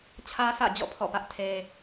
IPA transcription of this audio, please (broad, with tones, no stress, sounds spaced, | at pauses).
t͡ɕʰ ä˦ sʰ ä̰˦˨ d͡ʑ ɔ̰˦˨ pʰ ɔ̰˦˨ p ä˦ ʔ tʰ e˦